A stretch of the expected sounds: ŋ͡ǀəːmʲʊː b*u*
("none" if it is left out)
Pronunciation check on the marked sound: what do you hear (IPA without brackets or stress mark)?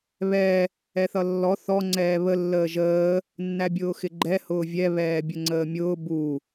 u